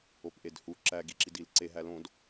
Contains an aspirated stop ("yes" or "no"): no